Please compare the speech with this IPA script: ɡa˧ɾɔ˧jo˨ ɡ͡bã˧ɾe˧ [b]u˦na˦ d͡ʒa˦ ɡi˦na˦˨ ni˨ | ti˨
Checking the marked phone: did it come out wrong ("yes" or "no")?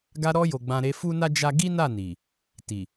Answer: yes